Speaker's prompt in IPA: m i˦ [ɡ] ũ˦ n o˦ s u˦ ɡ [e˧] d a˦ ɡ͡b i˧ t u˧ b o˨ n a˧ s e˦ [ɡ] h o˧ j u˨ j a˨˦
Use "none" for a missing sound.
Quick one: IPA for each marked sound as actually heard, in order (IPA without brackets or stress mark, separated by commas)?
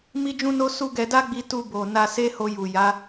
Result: d͡ʒ, ɛ˧, none